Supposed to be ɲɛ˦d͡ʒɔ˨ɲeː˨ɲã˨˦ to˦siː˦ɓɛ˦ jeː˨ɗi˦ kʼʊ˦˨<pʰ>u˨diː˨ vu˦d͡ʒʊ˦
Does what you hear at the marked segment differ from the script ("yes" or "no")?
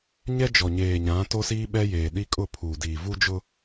no